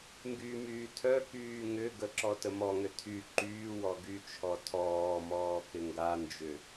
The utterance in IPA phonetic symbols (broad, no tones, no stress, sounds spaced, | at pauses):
ŋ ɡ y m yː tʰ œ k yː ŋ ʏ ɡ ə ǁ ɔ t ə m ɔ ŋ ʏ tʰ y ǃ yː w ɔ ɡ y t͡ʃʰ ɔ tʰ ɔː m ɔː k ɪ ŋ ɡ a n d͡ʒ ʏ